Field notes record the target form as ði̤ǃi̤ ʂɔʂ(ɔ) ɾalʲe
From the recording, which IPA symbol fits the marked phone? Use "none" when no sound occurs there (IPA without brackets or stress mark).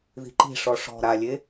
ɔ̤